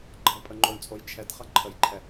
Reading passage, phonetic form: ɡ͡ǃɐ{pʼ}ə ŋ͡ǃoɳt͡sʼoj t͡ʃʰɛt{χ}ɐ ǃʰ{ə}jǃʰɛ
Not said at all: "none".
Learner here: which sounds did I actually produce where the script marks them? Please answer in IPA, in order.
pʼ, χ, ə

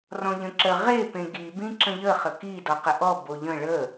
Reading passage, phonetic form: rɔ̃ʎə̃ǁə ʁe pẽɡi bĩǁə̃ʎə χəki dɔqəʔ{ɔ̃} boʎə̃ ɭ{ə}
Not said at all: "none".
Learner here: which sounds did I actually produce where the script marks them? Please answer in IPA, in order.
ɔ, ə

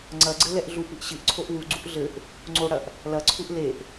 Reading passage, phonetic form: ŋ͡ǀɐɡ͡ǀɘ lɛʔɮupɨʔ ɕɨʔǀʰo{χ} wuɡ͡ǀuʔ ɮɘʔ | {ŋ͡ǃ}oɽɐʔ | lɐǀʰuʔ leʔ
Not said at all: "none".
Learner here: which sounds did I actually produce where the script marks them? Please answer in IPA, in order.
ʔ, ŋ͡ǀ

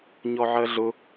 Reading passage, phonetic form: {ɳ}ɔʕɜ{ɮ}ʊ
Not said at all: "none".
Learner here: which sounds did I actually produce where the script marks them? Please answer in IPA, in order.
ɲ, ɮ

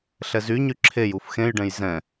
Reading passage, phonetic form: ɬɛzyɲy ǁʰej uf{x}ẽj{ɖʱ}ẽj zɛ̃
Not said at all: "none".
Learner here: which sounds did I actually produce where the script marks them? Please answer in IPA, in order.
x, ɖ

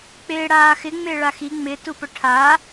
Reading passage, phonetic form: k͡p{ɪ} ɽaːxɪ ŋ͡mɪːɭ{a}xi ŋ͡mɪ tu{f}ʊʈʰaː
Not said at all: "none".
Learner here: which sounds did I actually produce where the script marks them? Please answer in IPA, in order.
ɪː, a, p

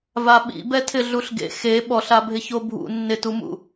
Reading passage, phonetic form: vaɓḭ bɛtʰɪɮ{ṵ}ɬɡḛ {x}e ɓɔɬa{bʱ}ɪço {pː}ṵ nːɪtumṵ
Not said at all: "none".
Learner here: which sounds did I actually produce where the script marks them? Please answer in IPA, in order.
u, x, bʱ, bʱ

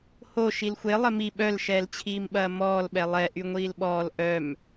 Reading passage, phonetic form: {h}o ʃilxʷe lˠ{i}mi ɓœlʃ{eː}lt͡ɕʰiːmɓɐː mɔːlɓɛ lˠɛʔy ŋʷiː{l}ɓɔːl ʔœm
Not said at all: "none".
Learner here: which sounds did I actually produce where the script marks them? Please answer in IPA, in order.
h, ɪ, ɛː, l

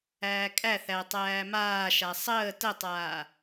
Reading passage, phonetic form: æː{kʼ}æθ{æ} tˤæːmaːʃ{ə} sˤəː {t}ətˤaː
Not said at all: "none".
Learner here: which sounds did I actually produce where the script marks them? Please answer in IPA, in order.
kʼ, æ, a, t

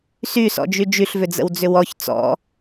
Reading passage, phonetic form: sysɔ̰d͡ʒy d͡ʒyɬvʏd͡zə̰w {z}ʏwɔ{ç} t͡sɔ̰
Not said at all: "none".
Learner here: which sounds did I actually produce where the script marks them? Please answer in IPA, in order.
d͡z, ç

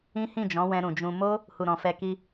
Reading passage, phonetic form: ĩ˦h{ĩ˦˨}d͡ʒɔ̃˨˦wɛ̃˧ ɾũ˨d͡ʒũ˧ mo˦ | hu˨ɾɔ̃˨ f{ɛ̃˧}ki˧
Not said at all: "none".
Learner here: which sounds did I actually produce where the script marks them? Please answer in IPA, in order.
ĩ˦˨, ɛ˧

